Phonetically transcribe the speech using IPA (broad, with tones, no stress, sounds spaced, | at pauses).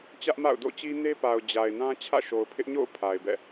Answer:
t͡ɕ ä˦ ʔ m a̰˦˨ ʊ̯ d o̰˦˨ t͡ɕ i˦ n e˦ p a˨ ʊ̯ d͡ʑ a˨ ɪ̯ n ã˦ t͡ɕʰ ä̰˦˨ ʃ o˨ ʊ̯ pʰ ɪ˦ ʔ ɲ o̰˦˨ ʊ̯ pʰ a˨ ɪ̯ b ɛ̰˦˨